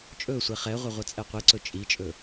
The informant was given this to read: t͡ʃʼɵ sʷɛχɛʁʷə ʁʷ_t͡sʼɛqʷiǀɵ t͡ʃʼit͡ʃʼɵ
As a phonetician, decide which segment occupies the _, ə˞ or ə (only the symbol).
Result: ə